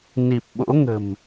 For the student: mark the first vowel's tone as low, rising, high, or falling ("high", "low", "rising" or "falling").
low